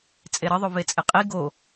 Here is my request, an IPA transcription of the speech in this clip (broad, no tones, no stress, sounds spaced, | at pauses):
t͡sʼ e ɾ ʌ ðˤ o v e t͡sʼ e qʼ i ɡ o